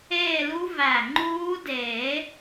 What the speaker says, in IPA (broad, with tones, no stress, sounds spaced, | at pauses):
eː˥˧ l u˦˥ v æ˧˩ ŋ͡ǃ uː˦˥ d eː˨˩˦